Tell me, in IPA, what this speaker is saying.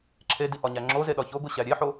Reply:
ǁʰedi ʔɒɲæŋ͡ǁoze ɗɒçoɡo ɕæɾʲeħo

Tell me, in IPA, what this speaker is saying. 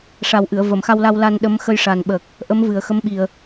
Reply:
ʂa˨˩w ʔɨ˨˩˨ə̯və˨˩˨mxa˧wla˧w la˧n ɗə˧˥m xə˧jʂa˨˩nɓəː˨˩k̚ | ʔə˧˥mvɨ˨˩ə̯xə˧˥mɓi˨˩ə̯

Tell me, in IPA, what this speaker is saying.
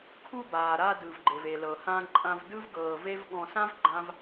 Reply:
kʰu˧baː˩ ɾa˧ dɯ˩vɡ͡ǃe˩ve˩lɤ˩ hã˧ǃʼã˧vdɯ˥v ɡɤː˧ve˥v ɠɔ̃˧sã˥v ɡ͡ǃã˥v

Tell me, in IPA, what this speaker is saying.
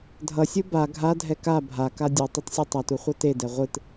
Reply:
dʱʌsʲɯ ba ɡʱadʱɛ ka bʱaka dʲe tˤetsʲɯtˤatu χʷʌtedɛ ʁʷɯt

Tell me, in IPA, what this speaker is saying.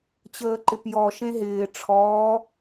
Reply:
t͡ɕəːǃɪpjɔ ʃẽɦɪː ʈ͡ʂʰɔː

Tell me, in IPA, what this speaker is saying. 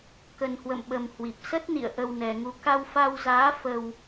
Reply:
kə˨˩nhwə̰˧˨mɓə˨˩m hwi˨˩p̚ sə˦˥t̚nḭ˧˨ə̯ ʔə˧wnɛ˨˩ŋu˧ ka˧wfa˧wzaː˨˦ fə˧w

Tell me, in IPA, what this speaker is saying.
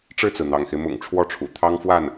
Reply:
ʈ͡ʂɻ̩˥˩t͡sɹ̩˩n̪ɑ̰˨˩ŋxe˦ɪ̯ mʊ̰˨˩ŋʈ͡ʂʰwɔ˥˩ʈ͡ʂʰṵ˨˩ t̪ʰɑ˥ŋfwa˥˩n

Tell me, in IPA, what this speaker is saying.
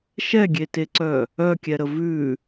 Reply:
ʃɛɡʲeteǀœ | œkʲɛɾə vʉ

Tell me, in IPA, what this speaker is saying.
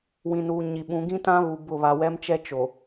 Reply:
wĩ˨nuː˨ɲi˨ ɓũ˨˦ ɡĩ˦tã˦ βu˨ bʊ˦˨ βa˨wɛ˦mt͡ʃɛ˦ t͡ʃo˨

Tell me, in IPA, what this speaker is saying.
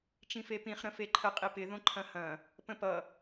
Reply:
t͡ʃĩfepĩχ ɾə̃feǃʰə qʼipɪ ðõǃʰɐ̃hɐ̃ | pə̃pʌ

